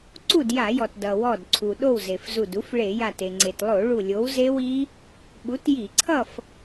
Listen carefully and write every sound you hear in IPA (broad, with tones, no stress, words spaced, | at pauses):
ǀu˥˨dja˧˩˧jɔ˩t dʌ˩wɔ˧˩dǀʰu˩ ɗo˥˨wze˩fzu˧˩du˨˥f ɭe˧˩˧ja˧˩t e˩ŋ͡ǀe˩tlˠo˧˩˧ ɭu˧˩lʲo˨˥wze˦˥wi˦˥ | ɓu˨˥tji˧˩˧ǀʰʌ˥˨f